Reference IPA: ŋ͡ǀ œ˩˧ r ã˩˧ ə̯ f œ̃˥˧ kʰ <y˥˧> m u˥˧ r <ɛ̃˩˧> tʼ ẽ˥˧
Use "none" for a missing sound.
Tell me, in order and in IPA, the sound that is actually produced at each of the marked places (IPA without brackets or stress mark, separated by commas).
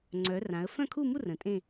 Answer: u˥˧, ə̃˩˧